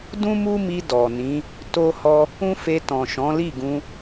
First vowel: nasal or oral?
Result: nasal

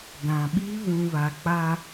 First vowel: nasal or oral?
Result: nasal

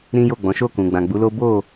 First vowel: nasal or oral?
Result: nasal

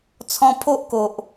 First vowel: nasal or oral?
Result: nasal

